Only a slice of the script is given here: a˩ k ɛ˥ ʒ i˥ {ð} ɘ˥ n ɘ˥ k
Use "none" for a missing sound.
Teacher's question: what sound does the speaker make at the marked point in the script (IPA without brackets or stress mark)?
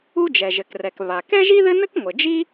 ð